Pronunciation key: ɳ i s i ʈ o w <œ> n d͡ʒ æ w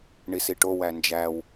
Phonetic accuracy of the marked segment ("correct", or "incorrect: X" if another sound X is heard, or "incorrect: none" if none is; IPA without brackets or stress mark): incorrect: æ